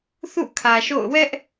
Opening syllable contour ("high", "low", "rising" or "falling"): falling